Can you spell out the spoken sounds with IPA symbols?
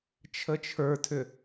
t͡ʃʰ ə t͡ʃʰ ə˞ tʰ ʏ

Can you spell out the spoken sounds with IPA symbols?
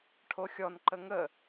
ʈʰ o xʲ ɔ n ǃ ə ŋ ə

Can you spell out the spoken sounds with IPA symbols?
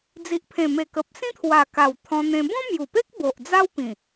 d͡z i˨ ʔ pʰ ẽ˨˩ m e˨˩ k ə˨ p̚ s ĩ˦ t̪ʰ w a˨˩ k a˨˩ w t̪ʰ ɔ̃˧ n̪ ẽ˧ b ɔ̃˦ m j u˨˩ p e˦ k̚ b o˨ ʔ d͡z a˦ w p ĩ˨˩

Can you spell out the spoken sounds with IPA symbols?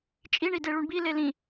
t͡ʃʼ i ɳ i d e ɭ u ɳ b i l e l ĩ

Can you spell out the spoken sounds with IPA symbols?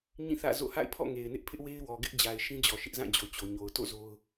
ɲ ĩ˦˨ θ ä̰˦˨ z o̰˦˨ h a̰˦˨ ɪ̯ pʰ ɔ̰˦˨ ŋ e˨ ɪ̯ n ɪ˦ ʔ pʰ ɪ˦ ʔ w e˦ ɪ̯ w ɔ˨ ɡ ɪ˦ ʔ d͡ʑ a˨ ɪ̯ ʃ ĩ˦ d͡ʑ ɔ˨ ʃ ɪ˦ ʔ z ã˦˨ d͡ʑ o˨ t͡ɕ o˨ ɲ o˨ ʊ̯ t o̰˦˨ z o˦ ʊ̯

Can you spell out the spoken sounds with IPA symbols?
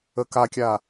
ə k a kʲ a

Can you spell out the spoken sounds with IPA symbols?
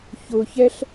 ç ʊ ç ɛ ɬ

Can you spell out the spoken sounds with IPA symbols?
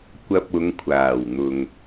kʷ ɐ˧ p̚ ʊ˨˧ ŋ kʷʰ aː˨˩ w n̪ ʊ˨ ŋ

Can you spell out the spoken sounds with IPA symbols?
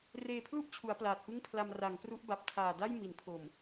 r eː˧ pʰ l u˥˩ ʔ t͡ɕʰ u˩˦ a̯ p l aː˨˩ t̚ p ɯ˥˩ ŋ pʰ l a˧ m r a˩˦ ŋ p r u˦˥ ʔ b a˨˩ p̚ tʰ aː˨˩ d a˥˩ j m i˩˦ n pʰ o˨˩ m

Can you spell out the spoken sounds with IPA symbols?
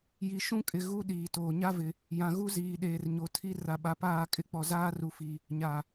j i˨ ʃ ũ˦ kʼ ɪ˨ ɣ u˦ ɗ iː˨ t oː˨ ɲ a˦ v ɪ˨ | j ã˨ ɣ u˦ z iː˨ ɗ eː˨ r ɲ o˨ tʰ i˦ r a˨ ɓ a˨ p aː˦˨ kʼ ɪ˦˨ k͡p ɔ˨ z aː˦ r u˨ f i˨ | ɲ a˨

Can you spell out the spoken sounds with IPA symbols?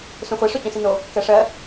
s ũ χʷ e ʂ o t͡ɕ õ s i n o | k ɜ ʂ ɜ

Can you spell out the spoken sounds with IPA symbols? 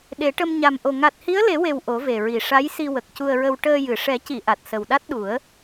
ɗ e˨˩˦ ʈ ə˧ m ɲ a˨˩ m ʔ o˨˩ ŋ a˨˩ t̚ h i˧˥ ə̯ l e˨˩˦ w e˨˩ w ʔ o˨˩˦ v e˨˩ ɹ i˨˩ ʂ a˧˥ j s i˧ w ə˨˩ k̚ c u˧ ə̯ ɹ ə˧ w ʈ əː˧ j ɨ˨˩ ʂ ɛ˨˩˦ c i˨˩˨ ʔ a˨˩ t̚ s ə˨˩ w ɗ a˦˥ t̚ ɗ u˨˩˦ ə̯

